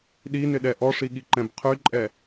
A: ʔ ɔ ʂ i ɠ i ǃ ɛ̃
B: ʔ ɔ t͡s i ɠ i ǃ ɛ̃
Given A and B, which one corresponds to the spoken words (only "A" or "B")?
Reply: A